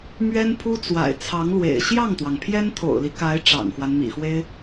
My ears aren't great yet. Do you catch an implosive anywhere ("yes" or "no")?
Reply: no